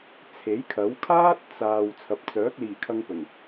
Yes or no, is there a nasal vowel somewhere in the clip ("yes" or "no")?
no